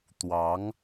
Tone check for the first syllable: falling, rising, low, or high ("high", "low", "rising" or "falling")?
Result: rising